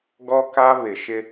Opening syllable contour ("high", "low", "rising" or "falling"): high